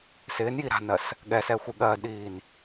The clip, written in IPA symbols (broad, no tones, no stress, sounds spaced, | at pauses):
s ɪː n j i ɾ a̤ n ɜ s | ɠ ɛ s ɛ xʷ i ɠ ɜː d ɗ iː n